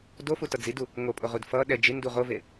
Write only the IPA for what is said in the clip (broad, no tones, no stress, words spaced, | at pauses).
dofutʌ d͡zidu | ŋopʼoʁud fʌ ɗɛ d͡ʒindu ʁove